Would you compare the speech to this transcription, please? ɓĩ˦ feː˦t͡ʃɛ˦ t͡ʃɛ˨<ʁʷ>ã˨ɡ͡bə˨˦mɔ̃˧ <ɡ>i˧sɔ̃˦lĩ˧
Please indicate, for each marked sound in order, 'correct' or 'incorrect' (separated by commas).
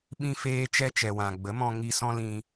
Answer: incorrect, incorrect